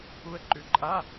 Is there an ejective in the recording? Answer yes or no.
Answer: yes